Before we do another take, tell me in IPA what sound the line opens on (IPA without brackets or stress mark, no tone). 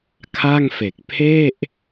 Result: kʰ